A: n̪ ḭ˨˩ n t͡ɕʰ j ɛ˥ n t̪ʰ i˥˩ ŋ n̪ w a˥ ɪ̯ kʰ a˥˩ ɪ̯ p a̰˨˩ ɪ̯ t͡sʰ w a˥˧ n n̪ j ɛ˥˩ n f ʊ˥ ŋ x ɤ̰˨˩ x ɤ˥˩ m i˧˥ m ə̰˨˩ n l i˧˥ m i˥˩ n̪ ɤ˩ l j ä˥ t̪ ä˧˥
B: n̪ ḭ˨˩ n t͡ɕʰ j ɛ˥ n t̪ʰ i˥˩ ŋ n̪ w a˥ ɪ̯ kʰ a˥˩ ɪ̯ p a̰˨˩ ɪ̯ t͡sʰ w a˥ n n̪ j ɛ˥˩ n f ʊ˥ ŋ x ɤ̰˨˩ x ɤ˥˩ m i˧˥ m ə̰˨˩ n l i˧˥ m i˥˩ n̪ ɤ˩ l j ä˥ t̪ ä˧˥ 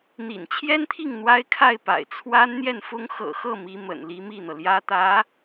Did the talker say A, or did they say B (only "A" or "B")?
B